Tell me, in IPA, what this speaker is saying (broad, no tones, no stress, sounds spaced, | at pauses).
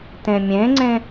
t ẽ mʲ ẽ ŋ͡ǀ ẽ